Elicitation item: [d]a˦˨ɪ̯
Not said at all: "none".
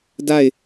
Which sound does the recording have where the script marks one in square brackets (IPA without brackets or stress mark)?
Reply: d